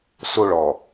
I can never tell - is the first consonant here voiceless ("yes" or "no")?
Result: yes